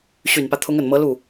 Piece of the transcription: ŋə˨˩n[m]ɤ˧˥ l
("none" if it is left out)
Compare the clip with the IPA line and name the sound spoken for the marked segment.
m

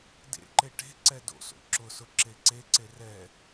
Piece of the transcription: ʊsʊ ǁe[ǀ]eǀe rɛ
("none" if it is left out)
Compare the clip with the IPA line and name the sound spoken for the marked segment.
ǀ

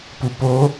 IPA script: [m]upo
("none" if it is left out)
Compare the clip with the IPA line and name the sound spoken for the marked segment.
p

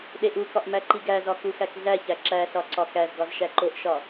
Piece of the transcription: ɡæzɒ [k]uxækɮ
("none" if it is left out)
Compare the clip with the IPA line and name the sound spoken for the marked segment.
k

